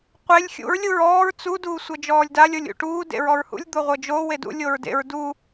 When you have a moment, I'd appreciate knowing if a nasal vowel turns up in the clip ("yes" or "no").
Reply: no